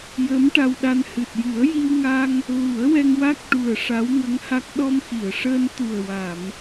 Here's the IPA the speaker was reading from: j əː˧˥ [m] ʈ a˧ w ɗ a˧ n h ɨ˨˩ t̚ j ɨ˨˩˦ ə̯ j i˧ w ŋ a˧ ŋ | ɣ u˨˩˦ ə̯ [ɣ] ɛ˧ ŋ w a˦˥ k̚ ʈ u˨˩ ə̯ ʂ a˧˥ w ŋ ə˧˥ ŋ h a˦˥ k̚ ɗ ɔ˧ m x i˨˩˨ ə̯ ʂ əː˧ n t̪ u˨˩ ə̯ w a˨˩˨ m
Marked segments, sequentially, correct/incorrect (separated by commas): correct, incorrect